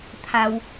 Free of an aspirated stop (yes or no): no